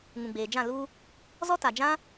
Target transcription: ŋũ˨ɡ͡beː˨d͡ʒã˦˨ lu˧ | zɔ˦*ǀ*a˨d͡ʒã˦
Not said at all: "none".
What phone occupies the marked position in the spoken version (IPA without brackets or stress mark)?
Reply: t